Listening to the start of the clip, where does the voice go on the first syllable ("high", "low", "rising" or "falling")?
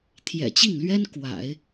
low